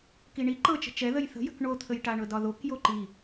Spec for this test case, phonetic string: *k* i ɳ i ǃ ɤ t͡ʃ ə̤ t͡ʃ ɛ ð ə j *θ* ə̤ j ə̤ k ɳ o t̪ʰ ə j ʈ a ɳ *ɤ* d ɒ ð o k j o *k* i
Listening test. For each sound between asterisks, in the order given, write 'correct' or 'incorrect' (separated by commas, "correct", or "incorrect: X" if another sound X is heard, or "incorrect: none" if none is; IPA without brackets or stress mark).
correct, correct, correct, incorrect: ǃ